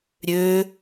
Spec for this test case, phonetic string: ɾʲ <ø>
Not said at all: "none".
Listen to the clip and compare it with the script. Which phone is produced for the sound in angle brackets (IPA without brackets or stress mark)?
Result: ø